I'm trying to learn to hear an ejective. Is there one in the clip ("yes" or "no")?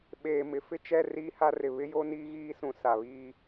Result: no